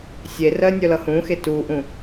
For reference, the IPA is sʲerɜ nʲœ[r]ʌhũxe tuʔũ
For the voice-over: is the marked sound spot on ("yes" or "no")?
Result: no